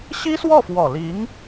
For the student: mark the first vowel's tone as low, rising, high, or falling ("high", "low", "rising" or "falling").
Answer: high